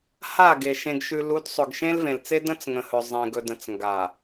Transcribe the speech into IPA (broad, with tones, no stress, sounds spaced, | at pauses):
h a˦˨ ɡ e˨ ʃ ẽ˨ ɡ ʃ ʉ˨ l u˨˦ d sˤ ɵ˨ ɡ ʃ ẽ˦ l v ẽ˨ l t͡s e˦ d ə̃˦ t͡s ŋ ə̃˨ h ɵ˨ zˤ ẽ˨ ɡ ɵ˨ d ə̃˨ t͡s ŋ ɡ a˨